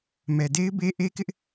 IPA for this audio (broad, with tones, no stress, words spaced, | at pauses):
mɛ˨de˦ɪ̯be˦ ʔe˦kɪ˦ʔ